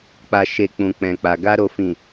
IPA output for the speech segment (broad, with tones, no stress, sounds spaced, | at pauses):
k͡p a˨ ʃ e˨ k͡p ũ˨ k͡p ɛ̃˨ k͡p a˨ ɡ a˧ ɾ o˨ f ĩ˨